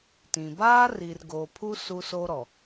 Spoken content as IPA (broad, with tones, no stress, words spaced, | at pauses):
tĩ˨ baː˦ri˨rɡoː˨pʰu˦ su˦so˦ɾɔ˨